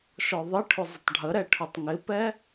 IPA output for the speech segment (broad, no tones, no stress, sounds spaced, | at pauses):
ʃ ɔ ðˤ ɪ ʈʰ ʊ zˤ ə tˤ ɖʱ ə ɾ ɛ ʈʰ ʊ tˤ ŋ ɪ p ɛ